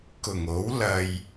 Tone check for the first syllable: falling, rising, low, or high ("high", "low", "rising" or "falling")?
low